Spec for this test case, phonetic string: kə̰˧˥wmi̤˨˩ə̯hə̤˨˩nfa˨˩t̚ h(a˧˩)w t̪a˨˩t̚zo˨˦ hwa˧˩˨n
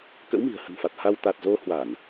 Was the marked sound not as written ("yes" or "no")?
yes